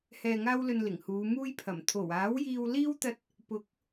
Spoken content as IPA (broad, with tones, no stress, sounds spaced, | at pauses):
h ɛː˧ ŋ aː˥ w l ɵ˧ n l ɪ˨˩ ŋ h uː˨˧ m uː˥ j pʰ ɐ˨˩ m t̪ʰ o˨˩ w aː˨˥ w j iː˧ w l iː˥ w t̪ ɐ˧ t̚ | p ʊ˨˥ k̚